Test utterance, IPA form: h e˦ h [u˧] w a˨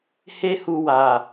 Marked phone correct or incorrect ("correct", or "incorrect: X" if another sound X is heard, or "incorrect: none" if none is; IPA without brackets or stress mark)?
correct